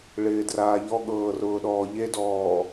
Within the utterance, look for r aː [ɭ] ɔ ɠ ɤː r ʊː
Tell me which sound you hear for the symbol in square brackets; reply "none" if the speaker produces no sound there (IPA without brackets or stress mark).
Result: ʎ